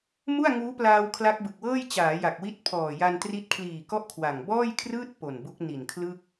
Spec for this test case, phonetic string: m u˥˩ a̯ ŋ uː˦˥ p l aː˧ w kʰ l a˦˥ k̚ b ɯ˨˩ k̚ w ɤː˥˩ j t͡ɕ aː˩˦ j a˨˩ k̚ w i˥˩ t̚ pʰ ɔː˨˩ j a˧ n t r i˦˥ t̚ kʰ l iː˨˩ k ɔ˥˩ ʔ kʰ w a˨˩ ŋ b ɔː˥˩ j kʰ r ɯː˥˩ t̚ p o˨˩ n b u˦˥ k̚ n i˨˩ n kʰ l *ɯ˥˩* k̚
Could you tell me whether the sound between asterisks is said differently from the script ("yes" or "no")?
no